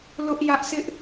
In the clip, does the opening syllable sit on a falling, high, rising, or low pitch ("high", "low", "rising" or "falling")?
high